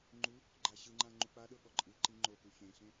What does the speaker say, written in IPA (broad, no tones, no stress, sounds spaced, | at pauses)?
ŋ͡ǃ u | ɡ͡ǃ a ɕ ɯ ŋ͡ǃ ã ŋ͡ǃ u k͡p a ɗ ɤ ɠ ɔ ǃʼ ɯ ǃ i ŋ͡ǃ o k u ç ẽ ɬ ẽ